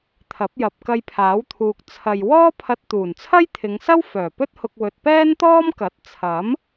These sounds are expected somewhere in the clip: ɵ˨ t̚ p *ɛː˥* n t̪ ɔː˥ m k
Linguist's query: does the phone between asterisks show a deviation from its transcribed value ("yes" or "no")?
no